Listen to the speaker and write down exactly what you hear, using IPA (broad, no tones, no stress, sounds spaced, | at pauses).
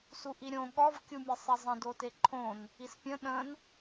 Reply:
s u ʔ i ɾʲ õ ɠ ɔ v kʲ u mʲ e sˤ i zˤ ə̃ d o t e ǃʰ õ n | i s pʲ ə̃ ɗ ə̃ n